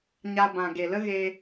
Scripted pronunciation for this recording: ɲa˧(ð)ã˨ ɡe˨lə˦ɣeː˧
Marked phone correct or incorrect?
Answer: incorrect